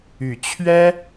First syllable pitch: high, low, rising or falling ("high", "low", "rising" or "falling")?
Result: low